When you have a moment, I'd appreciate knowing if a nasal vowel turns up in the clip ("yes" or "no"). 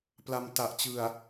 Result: no